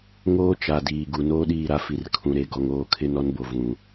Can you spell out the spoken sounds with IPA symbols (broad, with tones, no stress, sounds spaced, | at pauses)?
ŋ oː˦ t͡ʃ a˨ d iː˨ ɡ u˨ n oː˦ ɗ iː˦˨ ɾ a˦ f i˨ r kʰ ũ˨ ɾ e˨ ɡ ɔ˨ ŋ oː˦˨ kʰ ɪ˦ n ɔ˦ n b o˨ v ũ˨